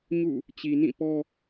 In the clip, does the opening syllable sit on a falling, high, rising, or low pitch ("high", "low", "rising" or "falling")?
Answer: falling